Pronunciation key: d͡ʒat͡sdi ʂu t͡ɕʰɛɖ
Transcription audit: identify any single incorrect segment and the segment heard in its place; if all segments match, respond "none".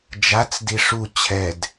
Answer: ɖ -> d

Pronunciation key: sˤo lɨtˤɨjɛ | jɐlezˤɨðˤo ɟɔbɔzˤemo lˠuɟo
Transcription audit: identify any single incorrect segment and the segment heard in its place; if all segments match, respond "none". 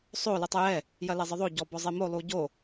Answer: none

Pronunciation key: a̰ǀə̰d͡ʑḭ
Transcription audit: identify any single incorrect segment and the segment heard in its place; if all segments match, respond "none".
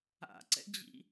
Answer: ə̰ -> ɛ̰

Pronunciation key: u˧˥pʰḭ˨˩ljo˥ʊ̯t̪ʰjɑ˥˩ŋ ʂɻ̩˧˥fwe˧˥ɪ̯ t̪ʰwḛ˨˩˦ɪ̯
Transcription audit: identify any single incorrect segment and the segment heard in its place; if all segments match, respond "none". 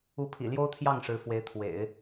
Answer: none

